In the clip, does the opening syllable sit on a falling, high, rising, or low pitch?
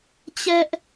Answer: high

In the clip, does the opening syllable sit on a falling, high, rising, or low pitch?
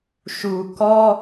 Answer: low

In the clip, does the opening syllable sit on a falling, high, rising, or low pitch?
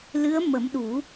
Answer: rising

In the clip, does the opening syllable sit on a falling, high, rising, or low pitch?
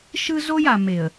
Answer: high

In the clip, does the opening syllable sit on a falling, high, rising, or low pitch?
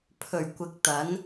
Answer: low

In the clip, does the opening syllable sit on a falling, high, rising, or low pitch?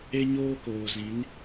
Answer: high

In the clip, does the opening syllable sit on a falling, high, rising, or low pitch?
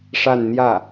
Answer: falling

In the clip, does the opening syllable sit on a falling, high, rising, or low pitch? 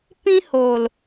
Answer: high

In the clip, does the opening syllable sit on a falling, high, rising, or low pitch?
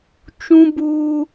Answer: high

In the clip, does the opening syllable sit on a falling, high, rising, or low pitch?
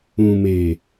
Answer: low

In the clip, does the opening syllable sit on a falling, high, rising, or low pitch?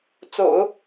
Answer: low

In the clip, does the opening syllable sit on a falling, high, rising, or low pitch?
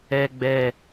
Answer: low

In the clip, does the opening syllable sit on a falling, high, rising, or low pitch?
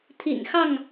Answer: low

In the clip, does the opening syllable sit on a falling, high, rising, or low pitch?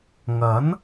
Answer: rising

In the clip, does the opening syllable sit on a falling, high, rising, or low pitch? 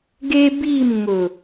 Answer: high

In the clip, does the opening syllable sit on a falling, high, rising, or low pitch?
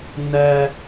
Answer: high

